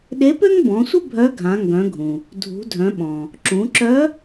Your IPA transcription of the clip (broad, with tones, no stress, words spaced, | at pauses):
ɗe˧˥pø˥ŋbɔ̃˩˧sʷə˥ bʱœ˧˥ɡʱã˩˧ŋɡœ̃˩˧ɡʱũ˩ | dʱṳ˩˧dʱœ̃˩˧ɓɔ̃˩ | ǁũ˩˧ǁœ˧˥